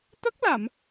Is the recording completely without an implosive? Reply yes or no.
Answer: yes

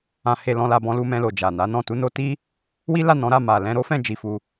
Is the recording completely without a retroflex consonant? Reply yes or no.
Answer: yes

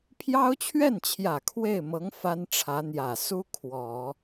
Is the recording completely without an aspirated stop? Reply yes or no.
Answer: no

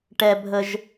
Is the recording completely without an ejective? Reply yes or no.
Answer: yes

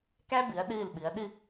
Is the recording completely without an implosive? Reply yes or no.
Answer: no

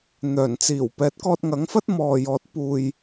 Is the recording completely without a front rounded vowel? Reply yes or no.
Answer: no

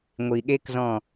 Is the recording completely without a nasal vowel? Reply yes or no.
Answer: no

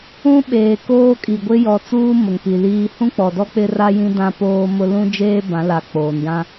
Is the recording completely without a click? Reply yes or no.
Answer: yes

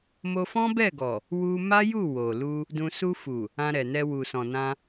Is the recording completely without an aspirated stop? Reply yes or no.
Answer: yes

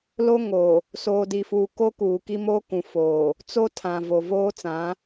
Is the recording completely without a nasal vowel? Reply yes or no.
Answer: no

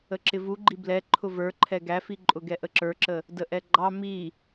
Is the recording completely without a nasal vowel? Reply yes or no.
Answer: yes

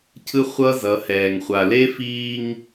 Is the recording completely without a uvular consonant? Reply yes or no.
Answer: no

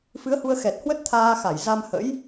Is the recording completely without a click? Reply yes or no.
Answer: yes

